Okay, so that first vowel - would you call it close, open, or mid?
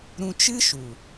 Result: close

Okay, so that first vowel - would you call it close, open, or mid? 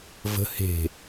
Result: mid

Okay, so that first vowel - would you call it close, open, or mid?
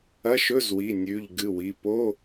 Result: open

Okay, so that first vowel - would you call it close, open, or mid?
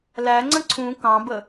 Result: open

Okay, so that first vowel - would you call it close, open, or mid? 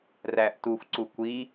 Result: open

